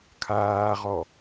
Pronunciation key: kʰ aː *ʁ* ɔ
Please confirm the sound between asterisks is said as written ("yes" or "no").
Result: yes